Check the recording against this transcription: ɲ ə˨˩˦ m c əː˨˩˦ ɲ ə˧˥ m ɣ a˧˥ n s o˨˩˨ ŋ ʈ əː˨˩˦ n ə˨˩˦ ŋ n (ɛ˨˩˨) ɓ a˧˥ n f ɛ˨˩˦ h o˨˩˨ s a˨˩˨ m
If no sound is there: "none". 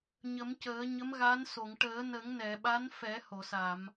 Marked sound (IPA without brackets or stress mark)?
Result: ɛ˨˩˨